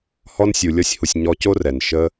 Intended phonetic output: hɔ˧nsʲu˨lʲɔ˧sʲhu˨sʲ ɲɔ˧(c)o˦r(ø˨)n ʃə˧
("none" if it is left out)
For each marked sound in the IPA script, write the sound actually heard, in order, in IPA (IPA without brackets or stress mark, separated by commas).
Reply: c, ɛ˨